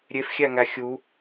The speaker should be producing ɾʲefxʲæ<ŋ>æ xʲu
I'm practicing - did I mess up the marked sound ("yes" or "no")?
no